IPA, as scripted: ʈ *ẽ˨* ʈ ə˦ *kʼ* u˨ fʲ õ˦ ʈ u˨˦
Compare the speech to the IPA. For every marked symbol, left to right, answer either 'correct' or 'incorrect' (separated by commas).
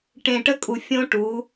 correct, correct